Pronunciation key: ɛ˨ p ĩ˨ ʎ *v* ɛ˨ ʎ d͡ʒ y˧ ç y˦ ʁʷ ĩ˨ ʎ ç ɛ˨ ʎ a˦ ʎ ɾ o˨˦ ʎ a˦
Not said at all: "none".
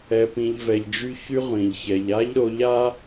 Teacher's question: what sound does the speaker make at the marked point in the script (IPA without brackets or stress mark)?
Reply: v